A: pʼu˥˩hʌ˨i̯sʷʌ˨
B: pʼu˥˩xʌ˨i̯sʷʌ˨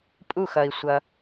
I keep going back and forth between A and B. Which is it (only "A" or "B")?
B